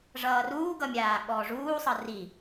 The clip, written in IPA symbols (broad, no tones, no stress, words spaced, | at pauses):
ʐʌːruːɡʌmʲaː ɠɔːʐuːsˤʌ ri